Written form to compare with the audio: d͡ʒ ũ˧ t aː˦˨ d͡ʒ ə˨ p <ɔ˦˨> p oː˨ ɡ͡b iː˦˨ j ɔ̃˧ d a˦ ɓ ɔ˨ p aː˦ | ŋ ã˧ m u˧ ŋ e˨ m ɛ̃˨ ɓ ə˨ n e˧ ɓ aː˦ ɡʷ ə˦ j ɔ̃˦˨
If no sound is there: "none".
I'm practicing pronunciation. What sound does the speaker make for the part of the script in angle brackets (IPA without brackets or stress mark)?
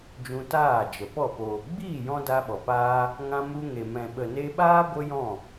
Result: ɔ˦˨